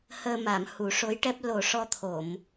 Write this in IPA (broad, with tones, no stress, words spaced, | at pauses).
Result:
həː˧ma˨˩˨m hu˨˩˦ʂo˧˥jʈɛ˦˥p̚ lo˨˩ʂɔ˧t̪ʰo˨˩˨m